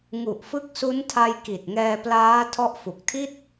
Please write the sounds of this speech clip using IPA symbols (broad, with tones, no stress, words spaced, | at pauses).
ŋu˨˩ʔfɯ˦˥k̚su˦˥ntʰa˧j ki˨˩t̚ŋɛː˧plaː˦˥ tʰɔ˦˥ʔfu˨˩k̚tʰi˥˩t̚